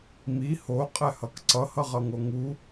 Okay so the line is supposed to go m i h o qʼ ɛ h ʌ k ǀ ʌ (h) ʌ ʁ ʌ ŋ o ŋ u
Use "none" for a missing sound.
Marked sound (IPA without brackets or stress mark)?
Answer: h